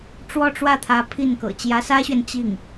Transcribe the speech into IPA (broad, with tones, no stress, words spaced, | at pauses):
ʈ͡ʂwɔ˥˧ʈ͡ʂwä˥˩t̪ʰä˧˥ pʰi˥˩nkɤ̰˨˩ t͡ɕjä˧˥sä˥ɕɥɛ˨n t͡ɕi˥˩ŋ